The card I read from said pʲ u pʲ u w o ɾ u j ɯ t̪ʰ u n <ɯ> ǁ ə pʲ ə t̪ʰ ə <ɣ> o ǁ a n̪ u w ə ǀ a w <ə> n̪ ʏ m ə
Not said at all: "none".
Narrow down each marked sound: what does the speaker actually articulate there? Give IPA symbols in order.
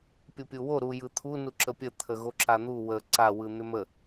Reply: u, ɣ, ɯ

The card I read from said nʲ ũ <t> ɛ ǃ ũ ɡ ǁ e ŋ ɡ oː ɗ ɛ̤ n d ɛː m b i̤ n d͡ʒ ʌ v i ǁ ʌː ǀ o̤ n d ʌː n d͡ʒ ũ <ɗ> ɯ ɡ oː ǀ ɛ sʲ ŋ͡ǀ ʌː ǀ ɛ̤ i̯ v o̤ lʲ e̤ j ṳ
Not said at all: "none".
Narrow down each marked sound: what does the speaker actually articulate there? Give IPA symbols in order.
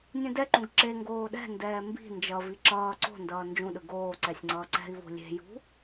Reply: d, ɗ

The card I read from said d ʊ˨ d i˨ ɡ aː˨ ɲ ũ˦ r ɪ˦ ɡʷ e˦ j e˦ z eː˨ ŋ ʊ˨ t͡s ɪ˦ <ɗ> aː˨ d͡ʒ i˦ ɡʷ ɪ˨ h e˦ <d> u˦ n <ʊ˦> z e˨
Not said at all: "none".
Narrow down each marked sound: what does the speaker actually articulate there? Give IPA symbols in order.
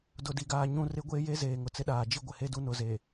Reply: ɗ, d, ʊ˨˦

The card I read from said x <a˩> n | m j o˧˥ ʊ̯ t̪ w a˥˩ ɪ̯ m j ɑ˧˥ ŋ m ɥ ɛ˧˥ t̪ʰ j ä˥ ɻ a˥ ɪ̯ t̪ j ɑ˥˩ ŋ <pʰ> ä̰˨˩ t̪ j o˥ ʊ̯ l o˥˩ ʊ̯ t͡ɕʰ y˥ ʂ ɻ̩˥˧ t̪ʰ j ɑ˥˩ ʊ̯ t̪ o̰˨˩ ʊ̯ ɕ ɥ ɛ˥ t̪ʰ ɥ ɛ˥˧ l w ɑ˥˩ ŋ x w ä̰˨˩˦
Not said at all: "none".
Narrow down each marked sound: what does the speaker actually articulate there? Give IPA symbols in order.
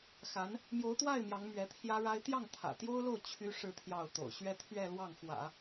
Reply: a˧˥, t̪ʰ

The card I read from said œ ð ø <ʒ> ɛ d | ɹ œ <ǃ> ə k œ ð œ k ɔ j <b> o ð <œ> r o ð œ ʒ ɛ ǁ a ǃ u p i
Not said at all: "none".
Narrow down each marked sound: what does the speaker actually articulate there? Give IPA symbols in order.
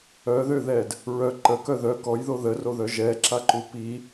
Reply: ð, ǃ, ð, ə

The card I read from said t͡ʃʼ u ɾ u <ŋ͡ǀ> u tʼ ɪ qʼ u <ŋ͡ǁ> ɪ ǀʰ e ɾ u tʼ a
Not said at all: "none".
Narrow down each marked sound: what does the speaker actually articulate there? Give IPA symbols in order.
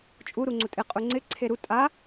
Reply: ŋ͡ǀ, ŋ͡ǀ

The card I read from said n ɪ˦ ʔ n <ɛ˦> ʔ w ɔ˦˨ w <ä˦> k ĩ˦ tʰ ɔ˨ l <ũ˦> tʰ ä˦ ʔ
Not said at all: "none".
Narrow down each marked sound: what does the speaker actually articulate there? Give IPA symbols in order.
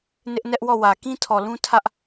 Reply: ɛ˦, ä˨, ũ˦

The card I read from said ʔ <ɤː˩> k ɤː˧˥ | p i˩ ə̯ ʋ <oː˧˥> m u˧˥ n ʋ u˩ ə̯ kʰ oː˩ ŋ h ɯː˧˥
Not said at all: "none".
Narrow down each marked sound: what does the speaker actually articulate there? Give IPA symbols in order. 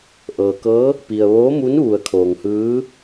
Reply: ɤː˩, oː˧˥

